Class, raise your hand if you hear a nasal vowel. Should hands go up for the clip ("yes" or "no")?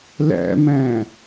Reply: yes